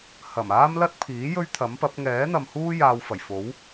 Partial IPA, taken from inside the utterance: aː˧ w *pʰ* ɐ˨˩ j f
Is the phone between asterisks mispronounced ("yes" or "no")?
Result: yes